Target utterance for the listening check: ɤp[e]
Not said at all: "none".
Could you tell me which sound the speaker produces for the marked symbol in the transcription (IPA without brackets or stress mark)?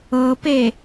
e